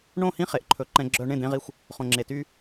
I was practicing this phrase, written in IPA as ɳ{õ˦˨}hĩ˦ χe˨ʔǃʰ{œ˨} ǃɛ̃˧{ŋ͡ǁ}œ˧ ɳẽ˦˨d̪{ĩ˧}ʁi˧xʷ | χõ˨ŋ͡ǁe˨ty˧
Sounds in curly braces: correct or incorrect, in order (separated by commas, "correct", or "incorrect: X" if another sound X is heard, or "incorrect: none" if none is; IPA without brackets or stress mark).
correct, incorrect: ɵ˨, incorrect: ɡ͡ǁ, incorrect: ẽ˧